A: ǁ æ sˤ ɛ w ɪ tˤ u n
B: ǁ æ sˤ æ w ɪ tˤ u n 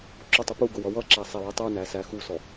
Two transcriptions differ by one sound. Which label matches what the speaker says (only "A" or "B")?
A